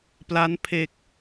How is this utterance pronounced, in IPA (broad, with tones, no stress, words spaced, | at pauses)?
pla˦˥npʰe˨˩k̚